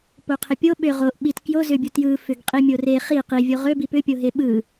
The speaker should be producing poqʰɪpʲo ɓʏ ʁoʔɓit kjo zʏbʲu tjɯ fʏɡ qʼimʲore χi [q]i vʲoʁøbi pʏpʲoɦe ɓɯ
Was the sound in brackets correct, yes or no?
yes